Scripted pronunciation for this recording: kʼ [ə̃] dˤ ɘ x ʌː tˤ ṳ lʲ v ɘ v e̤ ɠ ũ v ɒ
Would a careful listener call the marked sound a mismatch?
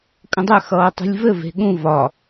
no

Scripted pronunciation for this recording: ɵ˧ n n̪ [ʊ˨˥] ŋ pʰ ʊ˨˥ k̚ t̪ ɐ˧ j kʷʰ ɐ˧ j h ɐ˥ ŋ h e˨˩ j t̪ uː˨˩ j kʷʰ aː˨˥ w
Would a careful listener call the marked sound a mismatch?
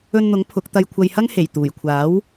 no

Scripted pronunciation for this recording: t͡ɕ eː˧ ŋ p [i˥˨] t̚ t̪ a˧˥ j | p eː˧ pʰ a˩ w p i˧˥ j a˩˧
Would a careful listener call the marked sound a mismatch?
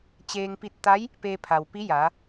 yes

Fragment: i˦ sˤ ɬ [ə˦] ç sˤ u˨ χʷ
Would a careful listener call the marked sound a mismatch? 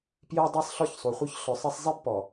yes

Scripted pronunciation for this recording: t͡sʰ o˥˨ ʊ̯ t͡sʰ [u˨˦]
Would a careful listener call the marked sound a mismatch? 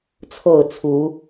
no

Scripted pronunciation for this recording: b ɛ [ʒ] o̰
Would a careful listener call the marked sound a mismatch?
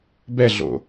yes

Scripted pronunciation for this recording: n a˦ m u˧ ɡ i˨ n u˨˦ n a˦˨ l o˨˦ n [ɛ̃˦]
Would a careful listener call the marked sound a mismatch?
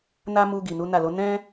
no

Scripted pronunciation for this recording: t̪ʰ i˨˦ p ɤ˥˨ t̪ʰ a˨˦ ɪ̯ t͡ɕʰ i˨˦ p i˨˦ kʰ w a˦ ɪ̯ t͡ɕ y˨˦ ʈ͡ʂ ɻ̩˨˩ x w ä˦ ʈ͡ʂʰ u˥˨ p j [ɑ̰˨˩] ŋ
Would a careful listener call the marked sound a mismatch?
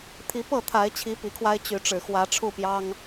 yes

